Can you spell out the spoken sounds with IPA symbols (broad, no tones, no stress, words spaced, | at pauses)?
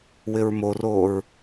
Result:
wɪɹmoroːɹ